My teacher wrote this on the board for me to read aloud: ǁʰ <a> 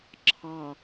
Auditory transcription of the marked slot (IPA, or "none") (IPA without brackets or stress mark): ɑ